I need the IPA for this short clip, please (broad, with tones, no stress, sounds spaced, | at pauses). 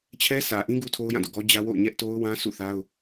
t͡ɕʰ ɛ˦ s ä˨ ʔ ĩ˦ ɡ u˦ tʰ o˦ ʊ̯ j ã˦˨ d o̰˦˨ ɡ ɔ˦ d͡ʑ ä˦ w o̰˦˨ ʊ̯ ɲ ɛ˦ ʔ t o˦ ʊ̯ w ã˦ s ṵ˦˨ θ a˦ ʊ̯